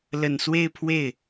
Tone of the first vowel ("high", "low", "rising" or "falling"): low